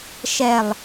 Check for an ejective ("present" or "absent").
absent